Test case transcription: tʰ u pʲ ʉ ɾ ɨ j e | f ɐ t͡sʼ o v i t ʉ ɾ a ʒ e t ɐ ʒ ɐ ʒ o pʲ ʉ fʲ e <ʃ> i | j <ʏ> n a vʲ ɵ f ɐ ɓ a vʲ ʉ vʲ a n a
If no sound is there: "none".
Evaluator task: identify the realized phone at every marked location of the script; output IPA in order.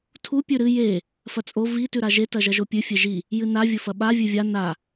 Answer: ʒ, ɨ

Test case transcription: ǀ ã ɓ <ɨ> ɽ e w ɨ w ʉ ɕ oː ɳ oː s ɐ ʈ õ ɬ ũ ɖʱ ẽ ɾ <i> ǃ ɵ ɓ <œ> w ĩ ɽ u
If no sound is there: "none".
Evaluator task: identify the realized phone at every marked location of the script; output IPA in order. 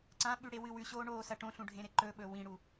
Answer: ʉ, e, ɵ

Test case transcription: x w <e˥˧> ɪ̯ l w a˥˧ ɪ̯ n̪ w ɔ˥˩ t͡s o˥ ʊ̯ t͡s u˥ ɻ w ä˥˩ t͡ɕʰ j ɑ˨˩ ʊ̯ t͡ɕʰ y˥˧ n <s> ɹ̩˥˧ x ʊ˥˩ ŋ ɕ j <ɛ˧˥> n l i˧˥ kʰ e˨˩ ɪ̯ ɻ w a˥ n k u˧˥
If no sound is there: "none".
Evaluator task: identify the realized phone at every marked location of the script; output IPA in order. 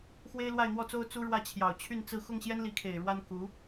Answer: e˥, t͡s, ɛ˥

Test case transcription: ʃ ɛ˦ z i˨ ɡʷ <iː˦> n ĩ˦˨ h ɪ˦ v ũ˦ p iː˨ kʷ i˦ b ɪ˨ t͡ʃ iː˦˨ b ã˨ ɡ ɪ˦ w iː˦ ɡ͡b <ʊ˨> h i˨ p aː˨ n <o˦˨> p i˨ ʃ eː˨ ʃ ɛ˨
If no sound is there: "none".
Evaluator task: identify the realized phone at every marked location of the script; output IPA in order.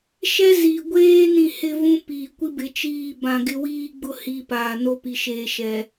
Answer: eː˦, ʊ˦, o˦

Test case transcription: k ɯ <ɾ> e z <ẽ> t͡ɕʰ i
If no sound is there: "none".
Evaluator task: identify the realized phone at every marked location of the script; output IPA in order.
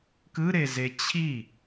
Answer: ɾ, e

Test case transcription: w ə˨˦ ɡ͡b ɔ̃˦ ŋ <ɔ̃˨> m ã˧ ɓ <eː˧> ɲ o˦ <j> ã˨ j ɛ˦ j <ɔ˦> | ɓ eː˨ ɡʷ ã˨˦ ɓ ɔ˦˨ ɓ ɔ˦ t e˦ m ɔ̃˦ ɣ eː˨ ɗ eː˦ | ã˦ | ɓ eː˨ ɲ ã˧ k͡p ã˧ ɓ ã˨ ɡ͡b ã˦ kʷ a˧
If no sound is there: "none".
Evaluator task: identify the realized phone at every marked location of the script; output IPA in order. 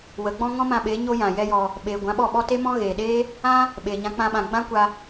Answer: ɔ̃˦, eː˨˦, j, ɔ˧

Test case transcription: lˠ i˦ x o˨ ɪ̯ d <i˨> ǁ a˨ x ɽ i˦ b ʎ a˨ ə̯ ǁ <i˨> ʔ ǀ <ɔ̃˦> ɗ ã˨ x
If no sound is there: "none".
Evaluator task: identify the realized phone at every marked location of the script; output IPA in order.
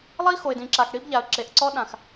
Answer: ĩ˨, e˨, ɔ˦

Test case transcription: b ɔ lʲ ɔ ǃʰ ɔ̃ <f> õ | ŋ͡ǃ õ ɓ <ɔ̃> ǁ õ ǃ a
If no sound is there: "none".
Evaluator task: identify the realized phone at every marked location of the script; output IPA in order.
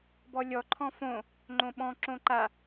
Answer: f, ɔ̃

